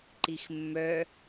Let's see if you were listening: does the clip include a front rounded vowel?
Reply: yes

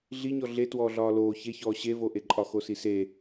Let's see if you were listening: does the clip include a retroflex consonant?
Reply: no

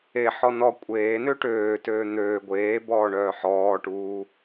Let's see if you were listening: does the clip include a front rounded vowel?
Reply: yes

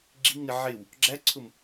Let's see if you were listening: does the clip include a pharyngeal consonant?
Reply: yes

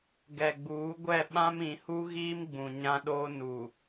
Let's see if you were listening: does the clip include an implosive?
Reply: yes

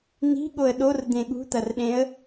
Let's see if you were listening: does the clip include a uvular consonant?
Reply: no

